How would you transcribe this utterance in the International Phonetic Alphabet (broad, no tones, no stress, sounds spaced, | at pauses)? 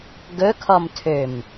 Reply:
ɡ ɵ kʰ ɔ m tʰ ø m